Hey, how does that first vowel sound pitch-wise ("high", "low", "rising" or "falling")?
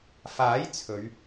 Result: rising